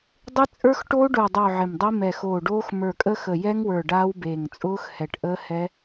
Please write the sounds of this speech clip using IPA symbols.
dˤ ɪ˦˥ t͡sʼ ə˞˦˥ x ʈ oː˦˥ ɖ ʊː˧˩ dˤ ʊː˧˩ ʕ ɪ˧˩ m dˤ i˦˥ m ɛ˧˩ x oː˧˩ ɖ oː˦˥ x m ə˞˧˩ kʼ ə˦˥ x ə˧˩ j ɛ˦˥ ŋ w ə˞˧˩ ɖ aː˦˥ w b eː˧˩ ŋ t͡sʼ ʊː˦˥ x h ɛ˧˩ ʈ ʔ əː˦˥ h ɛ˦˥

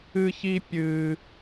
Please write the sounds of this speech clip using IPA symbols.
ɨ˥ ç i˥ pʲ ɨ˥

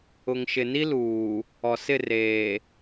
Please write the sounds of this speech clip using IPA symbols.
ʊ˨ ŋ ʃ ɪ˨ n i˦ l uː˨ | ɔ˨ s ɪ˦˨ r eː˨

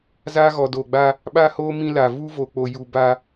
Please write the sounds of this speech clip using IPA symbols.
z aː˦ ɣ ɔ˨ d oː˨ ɡ͡b a˦ | ɓ a˦ h oː˦ m ĩ˦ l a˨ v u˦ v o˨ k͡p o˨ j u˨ b a˦

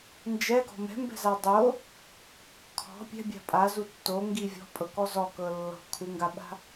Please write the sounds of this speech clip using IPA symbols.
n d͡ʒ ɛ ɡ ɔ̤ m ɛ̤ m b ɛ̤ z a dˤ o | kʰ ɔ̤ pʲ ɛ̤ bʲ a̤ pʼ a z u tː o ŋ ɡ i vʲ ɔ̤ pʼ ɤ k ɔ z ɔ k ɤ lː ɔ̤ kʰ u ŋ ɡ a ɓ a̤

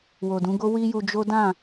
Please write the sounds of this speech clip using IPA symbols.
w o˨ d ũ˨˦ ɡ o˦ w i˦ j u˧ d͡ʒ o˦ d ã˦˨

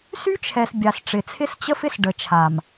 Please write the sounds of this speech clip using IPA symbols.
s y˦ t͡ʃʰ ɛ˨ s bʲ a˨ s ʈ͡ʂ ɪ˨ t͡sʰ ɪ˦ s t͡ɕ ə˦ f ɪ˦ s ɖ ə˨ t͡ʃʰ a˨ m

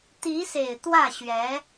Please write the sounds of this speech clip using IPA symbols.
t̪ i˧˥ s e˨˩ ɪ̯ t̪ w ä˥˩ ɕ ɥ ɛ˧˥

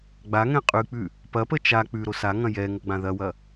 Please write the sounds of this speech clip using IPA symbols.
ɡ͡b a ŋ ɛ̃ qʼ ʉ k͡p ʉ | p ɐ p ə t͡ʃ a k͡p ʉ ɾ o s a ŋ ɐ̃ j ɛ ŋ o ɡ͡b ã ð ɐ w ɐ

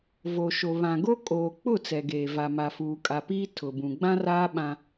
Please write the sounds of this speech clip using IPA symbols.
v o˨ ʃ o˨ β ã˨ ɡ o˦ kʼ oː˨ k͡p ʊ˦˨ t͡s ɛ˨ ɡ eː˨ v a˨ m a˨ f uː˨ kʼ a˨ p iː˦ tʰ ʊ˨ b ũ˨ ɡ͡b ã˦ r aː˦ ɓ ã˦

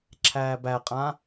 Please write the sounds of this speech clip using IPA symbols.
ǁʰ æː b æ qʼ ã

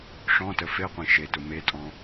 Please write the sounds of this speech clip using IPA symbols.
ʂ ɔ̃ t ə f e qʷ ẽ ʃ e t ʊ m e tʼ ɔ̃

